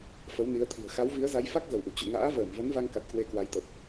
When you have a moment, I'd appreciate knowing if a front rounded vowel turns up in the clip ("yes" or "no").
no